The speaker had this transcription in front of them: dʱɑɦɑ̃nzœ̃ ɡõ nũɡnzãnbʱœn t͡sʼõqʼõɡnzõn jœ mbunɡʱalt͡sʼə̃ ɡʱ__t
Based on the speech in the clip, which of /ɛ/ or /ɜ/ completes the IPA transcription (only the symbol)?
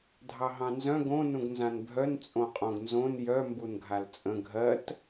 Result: ɜ